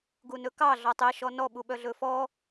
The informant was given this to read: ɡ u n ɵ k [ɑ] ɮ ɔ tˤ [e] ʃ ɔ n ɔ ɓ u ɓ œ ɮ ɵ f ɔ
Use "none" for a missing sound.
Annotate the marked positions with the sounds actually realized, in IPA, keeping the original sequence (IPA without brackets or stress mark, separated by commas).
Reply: ɑ, e